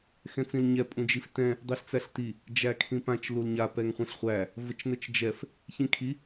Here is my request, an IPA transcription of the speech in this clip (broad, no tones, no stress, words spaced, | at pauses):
xɛ̃t͡sĩlɲɛ pʼũd͡ʒiftɛ̃ | dˤiɬt͡sæɬti | d͡ʒækʰĩpãt͡ʃ lulɲa pɛŋχʷɛ̃ɬχʷæ | vət͡ʃnət͡ʃd͡ʒɛf | çĩkʰi